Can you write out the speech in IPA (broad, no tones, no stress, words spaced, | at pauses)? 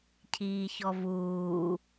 cʰiːçɔvuː